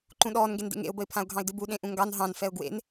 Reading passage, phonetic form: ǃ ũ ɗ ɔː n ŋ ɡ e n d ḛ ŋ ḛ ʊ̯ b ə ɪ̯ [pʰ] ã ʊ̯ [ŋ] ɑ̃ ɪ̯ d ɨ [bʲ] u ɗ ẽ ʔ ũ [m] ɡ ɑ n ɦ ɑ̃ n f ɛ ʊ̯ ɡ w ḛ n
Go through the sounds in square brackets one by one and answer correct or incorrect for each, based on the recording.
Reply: correct, incorrect, incorrect, incorrect

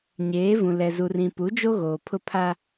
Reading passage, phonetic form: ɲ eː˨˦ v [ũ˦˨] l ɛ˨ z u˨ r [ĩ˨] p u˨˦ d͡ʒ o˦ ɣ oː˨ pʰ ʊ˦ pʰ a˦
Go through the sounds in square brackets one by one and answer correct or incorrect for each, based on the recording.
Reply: incorrect, correct

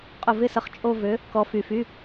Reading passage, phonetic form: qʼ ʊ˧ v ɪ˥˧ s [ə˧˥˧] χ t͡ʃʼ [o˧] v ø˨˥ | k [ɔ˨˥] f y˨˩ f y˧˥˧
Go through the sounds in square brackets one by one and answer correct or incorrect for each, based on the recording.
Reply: incorrect, incorrect, correct

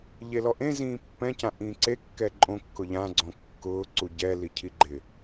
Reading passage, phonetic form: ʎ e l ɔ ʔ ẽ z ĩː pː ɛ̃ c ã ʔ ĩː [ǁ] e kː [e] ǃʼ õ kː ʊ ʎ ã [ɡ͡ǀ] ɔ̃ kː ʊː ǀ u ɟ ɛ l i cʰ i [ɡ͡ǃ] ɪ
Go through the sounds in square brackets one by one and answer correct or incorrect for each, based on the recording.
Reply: incorrect, incorrect, correct, correct

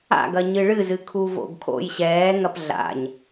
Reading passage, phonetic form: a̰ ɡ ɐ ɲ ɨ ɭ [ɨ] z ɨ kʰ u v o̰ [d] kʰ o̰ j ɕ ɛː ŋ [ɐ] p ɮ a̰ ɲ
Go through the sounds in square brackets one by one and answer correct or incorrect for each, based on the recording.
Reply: correct, incorrect, correct

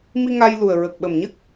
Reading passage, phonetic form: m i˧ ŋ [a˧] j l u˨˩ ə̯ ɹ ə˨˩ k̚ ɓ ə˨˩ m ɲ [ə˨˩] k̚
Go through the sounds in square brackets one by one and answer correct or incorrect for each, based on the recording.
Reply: correct, incorrect

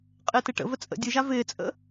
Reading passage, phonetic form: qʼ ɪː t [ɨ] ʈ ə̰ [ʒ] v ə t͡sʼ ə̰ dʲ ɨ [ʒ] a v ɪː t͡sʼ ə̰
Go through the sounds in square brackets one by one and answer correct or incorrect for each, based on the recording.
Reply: correct, incorrect, correct

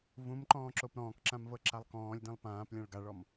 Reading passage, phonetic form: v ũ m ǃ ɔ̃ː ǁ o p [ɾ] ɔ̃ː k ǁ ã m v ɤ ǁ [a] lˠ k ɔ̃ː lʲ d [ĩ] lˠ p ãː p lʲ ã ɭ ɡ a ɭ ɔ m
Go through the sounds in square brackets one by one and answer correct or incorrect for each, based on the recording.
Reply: correct, correct, correct

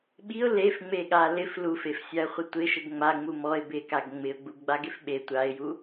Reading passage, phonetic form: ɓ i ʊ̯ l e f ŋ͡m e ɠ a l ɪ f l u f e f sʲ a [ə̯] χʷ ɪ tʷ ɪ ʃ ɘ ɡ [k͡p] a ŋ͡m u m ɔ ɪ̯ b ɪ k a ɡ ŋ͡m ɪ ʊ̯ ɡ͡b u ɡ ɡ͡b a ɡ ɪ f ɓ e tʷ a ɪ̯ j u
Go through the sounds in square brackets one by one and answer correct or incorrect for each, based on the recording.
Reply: correct, incorrect

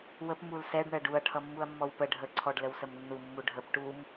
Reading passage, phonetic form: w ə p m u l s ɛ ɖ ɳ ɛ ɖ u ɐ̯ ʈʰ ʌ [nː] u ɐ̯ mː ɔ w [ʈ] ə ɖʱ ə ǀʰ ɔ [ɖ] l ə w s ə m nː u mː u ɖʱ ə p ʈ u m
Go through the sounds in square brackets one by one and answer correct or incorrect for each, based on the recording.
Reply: incorrect, incorrect, correct

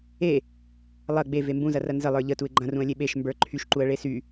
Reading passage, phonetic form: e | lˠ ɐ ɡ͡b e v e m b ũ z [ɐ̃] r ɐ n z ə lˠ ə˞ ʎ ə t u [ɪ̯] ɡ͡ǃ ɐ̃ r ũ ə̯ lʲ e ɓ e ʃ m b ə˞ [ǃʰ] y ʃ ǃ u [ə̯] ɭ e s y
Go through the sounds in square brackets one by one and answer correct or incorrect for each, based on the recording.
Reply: incorrect, correct, correct, correct

